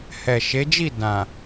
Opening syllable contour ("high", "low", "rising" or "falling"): low